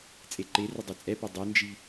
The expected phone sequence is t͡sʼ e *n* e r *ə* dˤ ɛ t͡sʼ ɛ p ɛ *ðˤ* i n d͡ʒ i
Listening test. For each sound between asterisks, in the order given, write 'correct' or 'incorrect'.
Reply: incorrect, correct, incorrect

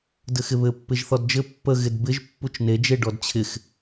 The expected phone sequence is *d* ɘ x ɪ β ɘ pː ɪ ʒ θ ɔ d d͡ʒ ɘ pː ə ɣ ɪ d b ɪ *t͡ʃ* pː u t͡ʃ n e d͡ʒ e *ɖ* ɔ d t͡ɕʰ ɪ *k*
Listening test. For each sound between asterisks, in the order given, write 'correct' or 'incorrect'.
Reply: correct, incorrect, correct, incorrect

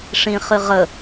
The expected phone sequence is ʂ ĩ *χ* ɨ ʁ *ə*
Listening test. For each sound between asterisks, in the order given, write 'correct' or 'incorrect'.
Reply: correct, correct

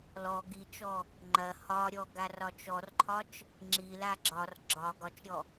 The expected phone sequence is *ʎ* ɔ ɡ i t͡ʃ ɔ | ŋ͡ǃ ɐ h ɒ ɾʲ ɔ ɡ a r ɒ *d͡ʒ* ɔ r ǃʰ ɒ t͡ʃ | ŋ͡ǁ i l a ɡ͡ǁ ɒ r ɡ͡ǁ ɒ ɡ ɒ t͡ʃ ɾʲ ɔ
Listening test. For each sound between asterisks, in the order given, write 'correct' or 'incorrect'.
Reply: incorrect, incorrect

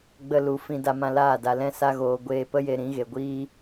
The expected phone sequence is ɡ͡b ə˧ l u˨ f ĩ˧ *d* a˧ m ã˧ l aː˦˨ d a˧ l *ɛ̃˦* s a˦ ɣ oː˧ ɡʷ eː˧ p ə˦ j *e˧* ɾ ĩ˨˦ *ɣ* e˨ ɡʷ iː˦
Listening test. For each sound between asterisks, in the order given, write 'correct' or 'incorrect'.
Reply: correct, correct, correct, correct

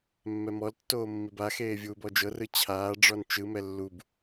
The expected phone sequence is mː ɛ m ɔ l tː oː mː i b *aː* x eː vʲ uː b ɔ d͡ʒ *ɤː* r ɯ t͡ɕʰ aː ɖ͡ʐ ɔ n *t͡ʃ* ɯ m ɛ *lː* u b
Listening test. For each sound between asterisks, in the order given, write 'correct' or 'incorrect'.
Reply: incorrect, incorrect, correct, correct

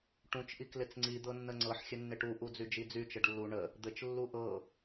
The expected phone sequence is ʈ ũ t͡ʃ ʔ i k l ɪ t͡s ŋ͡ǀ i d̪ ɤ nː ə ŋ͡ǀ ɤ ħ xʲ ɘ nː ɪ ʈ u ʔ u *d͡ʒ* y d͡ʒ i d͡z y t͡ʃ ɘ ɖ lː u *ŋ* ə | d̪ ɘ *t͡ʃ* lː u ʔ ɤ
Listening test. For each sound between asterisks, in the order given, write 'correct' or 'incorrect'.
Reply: incorrect, incorrect, correct

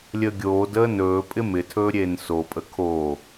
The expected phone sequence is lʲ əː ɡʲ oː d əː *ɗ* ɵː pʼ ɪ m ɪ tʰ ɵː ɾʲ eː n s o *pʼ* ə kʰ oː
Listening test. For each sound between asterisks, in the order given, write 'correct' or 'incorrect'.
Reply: incorrect, correct

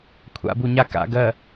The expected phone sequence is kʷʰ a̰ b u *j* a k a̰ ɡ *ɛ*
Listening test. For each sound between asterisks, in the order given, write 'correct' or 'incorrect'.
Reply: incorrect, incorrect

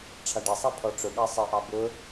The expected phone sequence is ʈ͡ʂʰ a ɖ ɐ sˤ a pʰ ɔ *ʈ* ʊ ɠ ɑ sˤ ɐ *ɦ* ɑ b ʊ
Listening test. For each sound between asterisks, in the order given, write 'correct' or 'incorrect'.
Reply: incorrect, incorrect

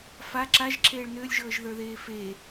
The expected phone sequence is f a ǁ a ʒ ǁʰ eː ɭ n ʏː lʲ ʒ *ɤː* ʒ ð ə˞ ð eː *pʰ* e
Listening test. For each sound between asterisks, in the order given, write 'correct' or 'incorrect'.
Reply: correct, incorrect

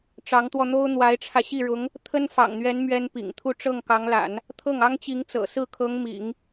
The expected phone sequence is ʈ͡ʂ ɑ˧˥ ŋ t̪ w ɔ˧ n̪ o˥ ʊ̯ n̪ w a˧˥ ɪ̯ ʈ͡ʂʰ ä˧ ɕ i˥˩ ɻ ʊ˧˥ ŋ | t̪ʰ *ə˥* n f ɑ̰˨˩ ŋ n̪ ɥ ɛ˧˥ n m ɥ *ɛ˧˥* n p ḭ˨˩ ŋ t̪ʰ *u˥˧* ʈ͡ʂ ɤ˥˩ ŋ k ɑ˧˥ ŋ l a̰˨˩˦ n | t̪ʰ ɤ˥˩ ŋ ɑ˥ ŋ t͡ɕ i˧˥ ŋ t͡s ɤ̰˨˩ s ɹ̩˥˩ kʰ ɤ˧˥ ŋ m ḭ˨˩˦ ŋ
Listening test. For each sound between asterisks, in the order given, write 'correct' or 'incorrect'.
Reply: correct, incorrect, correct

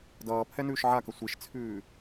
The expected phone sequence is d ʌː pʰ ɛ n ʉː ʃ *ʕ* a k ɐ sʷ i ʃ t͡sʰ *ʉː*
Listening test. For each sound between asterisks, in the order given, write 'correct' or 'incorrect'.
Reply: correct, correct

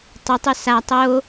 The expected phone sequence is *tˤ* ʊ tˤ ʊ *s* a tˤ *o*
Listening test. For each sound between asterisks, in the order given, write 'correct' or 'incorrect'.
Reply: correct, correct, correct

